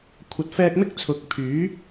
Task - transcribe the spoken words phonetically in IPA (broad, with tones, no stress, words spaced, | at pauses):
kʷʰɐ˨˥t̚fɛː˧k̚mɪ˥k̚ t͡sʰʊ˨˥k̚pʰyː˨˥